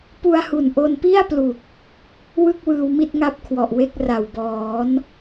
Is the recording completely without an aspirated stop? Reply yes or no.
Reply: no